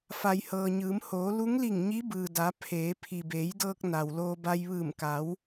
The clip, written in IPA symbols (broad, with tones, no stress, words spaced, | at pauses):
fa˩jhɤː˩ɲɯː˩˧m hoː˩˧ lu˧˥ŋli˧˩ŋ ɲi˧˥bɯː˩da˩˧ pʰeː˩˧ pʰi˩beː˩˧jdɤː˧k̚ na˩wloː˧ ba˧j ʋɯː˧˩mka˩˧w